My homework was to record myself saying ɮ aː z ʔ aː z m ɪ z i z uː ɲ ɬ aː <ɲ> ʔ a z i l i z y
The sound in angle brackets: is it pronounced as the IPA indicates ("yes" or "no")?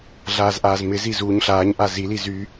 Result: yes